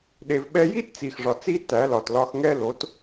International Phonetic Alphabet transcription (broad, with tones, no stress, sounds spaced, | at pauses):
ɗ e˧ v ɓ ɛ˦ j i˦ t t͡s i˨ x ʐ ɒ˨ t͡s i˧ t æ˨˦ l ɒ˨ t l ɒ˧ x ŋ ɛ˦ l o˨˦ t